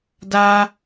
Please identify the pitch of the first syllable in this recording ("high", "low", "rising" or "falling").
high